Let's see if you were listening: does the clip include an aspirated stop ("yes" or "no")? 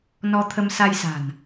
yes